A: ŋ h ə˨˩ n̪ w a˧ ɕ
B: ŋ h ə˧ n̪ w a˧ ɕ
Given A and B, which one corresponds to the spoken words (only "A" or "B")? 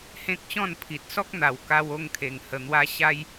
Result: A